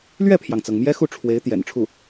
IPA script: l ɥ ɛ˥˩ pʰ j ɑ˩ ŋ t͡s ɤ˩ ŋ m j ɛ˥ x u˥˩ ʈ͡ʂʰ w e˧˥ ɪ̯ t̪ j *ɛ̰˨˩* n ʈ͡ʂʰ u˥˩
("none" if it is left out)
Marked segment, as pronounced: ɛ̰˨˩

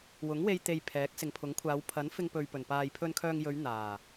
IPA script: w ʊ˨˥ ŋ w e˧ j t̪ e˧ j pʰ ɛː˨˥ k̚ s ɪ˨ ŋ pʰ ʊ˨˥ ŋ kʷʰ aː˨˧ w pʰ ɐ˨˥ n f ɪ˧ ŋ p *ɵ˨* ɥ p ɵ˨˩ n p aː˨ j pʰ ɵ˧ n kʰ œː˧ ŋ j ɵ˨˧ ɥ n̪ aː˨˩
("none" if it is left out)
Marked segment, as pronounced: ɵ˨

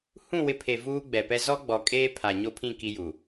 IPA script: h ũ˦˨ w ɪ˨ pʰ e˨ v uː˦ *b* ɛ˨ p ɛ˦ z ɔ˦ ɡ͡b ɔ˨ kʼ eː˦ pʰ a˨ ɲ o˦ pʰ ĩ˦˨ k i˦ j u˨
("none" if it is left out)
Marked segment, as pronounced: ɡ͡b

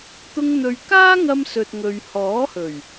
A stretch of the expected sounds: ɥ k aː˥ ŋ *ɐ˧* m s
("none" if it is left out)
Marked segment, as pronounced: ɐ˧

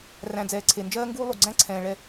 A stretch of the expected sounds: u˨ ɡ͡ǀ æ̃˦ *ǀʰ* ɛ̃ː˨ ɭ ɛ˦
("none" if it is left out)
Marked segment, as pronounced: ǀʰ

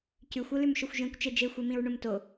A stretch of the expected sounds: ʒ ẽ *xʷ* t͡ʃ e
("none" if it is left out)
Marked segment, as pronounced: kʷ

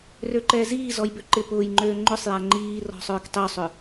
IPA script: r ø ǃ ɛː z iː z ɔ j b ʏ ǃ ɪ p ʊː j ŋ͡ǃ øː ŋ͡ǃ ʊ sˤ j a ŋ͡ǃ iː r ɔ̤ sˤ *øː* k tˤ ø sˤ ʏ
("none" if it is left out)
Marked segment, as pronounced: øː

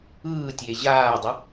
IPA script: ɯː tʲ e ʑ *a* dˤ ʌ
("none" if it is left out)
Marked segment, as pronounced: aː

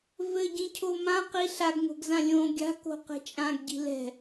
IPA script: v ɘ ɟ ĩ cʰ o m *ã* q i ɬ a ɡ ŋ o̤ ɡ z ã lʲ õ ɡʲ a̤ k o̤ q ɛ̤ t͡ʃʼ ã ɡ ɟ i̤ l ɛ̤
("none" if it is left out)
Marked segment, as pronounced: ã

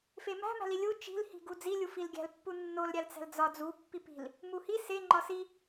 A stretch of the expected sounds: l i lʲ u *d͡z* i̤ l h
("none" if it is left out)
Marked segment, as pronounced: t͡ʃ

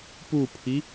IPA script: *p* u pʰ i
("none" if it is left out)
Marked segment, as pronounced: p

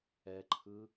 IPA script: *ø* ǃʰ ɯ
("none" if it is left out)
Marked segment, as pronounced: ɛ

